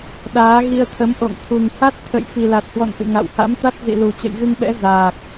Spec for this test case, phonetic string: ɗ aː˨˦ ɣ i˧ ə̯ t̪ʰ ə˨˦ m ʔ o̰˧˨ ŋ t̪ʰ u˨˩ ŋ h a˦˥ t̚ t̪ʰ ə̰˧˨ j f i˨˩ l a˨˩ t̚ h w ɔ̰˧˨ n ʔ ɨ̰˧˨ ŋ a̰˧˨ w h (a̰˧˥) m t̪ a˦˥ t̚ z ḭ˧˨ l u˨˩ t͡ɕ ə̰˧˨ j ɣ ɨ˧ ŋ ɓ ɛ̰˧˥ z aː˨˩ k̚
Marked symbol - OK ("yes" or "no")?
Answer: yes